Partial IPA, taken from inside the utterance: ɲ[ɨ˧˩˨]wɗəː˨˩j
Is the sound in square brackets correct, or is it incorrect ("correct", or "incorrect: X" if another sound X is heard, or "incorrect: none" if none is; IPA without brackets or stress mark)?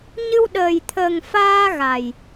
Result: incorrect: ɨ˧